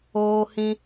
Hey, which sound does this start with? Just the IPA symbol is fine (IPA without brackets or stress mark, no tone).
oː